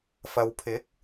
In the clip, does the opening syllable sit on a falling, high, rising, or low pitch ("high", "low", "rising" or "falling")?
low